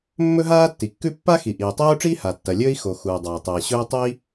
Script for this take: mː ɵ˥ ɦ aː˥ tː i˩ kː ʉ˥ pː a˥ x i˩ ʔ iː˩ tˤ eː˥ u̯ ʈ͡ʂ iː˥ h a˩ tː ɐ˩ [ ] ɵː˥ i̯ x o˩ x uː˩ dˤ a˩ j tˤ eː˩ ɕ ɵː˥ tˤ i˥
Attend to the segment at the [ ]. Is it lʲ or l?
lʲ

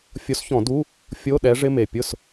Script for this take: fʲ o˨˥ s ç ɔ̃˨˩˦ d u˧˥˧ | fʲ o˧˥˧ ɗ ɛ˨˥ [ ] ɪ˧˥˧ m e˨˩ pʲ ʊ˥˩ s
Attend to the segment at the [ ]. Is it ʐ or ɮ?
ʐ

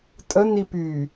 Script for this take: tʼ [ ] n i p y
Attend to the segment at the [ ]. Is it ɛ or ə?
ə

